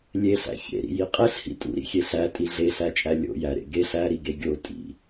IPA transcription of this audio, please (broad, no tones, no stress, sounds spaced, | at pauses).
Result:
lʲ e ɬ æ̰ ç ḛ ɾ ḭ j i qʼ e ɬ h ḭ tʼ ṵ ɾ ḭ xʲ e ɬ æ tʼ i ɮ e ɬ æ t͡ʃʼ æ lʲ o̰ j æ ɾ ḛ ɡ e ɬ æ ɾ i ɡ e ɡʲ o tʼ ḭ